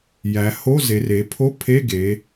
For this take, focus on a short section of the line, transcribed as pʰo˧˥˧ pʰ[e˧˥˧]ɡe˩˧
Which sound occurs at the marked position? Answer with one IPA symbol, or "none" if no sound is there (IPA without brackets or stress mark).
e˧˥˧